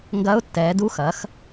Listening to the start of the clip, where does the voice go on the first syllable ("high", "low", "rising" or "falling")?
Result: rising